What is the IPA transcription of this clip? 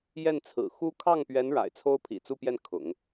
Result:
jɛ˥˩nt͡sʰɹ̩˨˩ xu˥ kʰɑ˥˩ŋpɥɛ˧˥n ɻa̰˨˩ɪ̯t͡sʰo˥ʊ̯ pʰḭ˨˩t͡su˥˧pjɛ˥˩n kʰʊ̰˨˩˦ŋ

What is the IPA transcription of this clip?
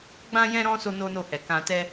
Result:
ɡ͡bã˦jɛ̃˦ ɾɔ̃˦ so˦no˦no˦˨hɛ˨ kã˧tɛ˦

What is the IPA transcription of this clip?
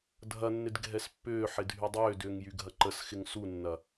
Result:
dʱɐnːɪd ɡʱɛspːʏːħɪ dʱydˤʏːdʏːŋ jyɡʱɐǃəsxɪŋ sunːɐ

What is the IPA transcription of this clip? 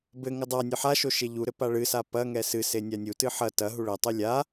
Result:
bɘ ŋɘdˤanʲɨ ħaʃo ʃeʎuɾɘ paɭɨsa pɐŋɛ sɨse nʲanʲutɨ ħɐ tɐ ɦuɭɘtˤɨ lʲa

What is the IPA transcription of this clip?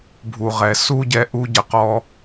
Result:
bʱu˨ ʁɛ˨su˦ɟɛ˧ ʔu˧ɟə˨qɔ˧

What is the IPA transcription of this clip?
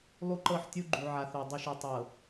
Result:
lˠu˦ǃɤ˦˨ħtʲu˦ ɡ͡ǃu˨ʕa˨θo˨ dˤu˨ʃe˨tˤɤ˨

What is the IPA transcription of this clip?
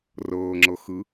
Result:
rɤːŋ͡ǁɤxɯ

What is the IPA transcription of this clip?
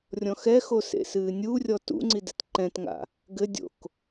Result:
rʲɔ̃xɛxo sḛsɨːnʲurʲɔ tṵŋ͡ǀi dɛtǃɛ̃tŋa̰ | ɡɘdʲo̰k

